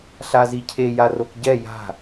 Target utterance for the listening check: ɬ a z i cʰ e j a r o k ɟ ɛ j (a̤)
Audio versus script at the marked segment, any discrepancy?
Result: no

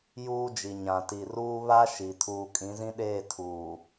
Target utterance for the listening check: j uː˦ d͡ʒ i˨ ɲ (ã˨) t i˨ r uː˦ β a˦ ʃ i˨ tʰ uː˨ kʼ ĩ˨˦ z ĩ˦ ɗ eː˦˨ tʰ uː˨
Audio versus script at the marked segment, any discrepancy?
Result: no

